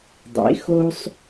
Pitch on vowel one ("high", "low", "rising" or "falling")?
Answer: rising